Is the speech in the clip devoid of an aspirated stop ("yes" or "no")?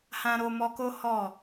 yes